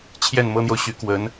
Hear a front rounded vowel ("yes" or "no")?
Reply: yes